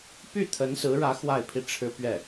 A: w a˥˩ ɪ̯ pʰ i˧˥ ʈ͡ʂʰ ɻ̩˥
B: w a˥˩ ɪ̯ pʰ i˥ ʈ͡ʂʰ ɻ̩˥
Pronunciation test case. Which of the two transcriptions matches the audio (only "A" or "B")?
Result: B